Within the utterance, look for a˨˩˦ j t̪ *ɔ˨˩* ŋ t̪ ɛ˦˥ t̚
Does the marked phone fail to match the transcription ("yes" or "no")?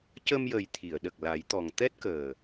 no